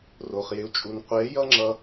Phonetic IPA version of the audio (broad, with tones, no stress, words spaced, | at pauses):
ro˨χ jɪ˨u̯t͡ʃʼu˨n qʷe˨˦jʌ˦ŋ͡ǁʌ˧